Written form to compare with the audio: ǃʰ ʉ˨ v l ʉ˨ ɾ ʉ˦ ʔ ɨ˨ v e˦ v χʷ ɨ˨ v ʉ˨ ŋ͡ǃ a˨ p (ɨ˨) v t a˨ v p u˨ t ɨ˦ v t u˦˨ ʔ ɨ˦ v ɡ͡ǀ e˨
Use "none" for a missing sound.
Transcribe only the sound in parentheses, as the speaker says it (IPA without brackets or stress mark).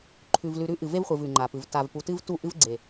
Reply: ɨ˨